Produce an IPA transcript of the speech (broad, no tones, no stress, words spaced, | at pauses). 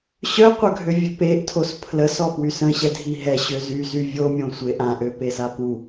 ɕœqʷœɡʱøvʲø peʔtʰos pʰləsɔpwys ə̃ɕɛdʱi ɦɛɕøzyzy vʲomʲõsʷe ʔãʔøpesa pu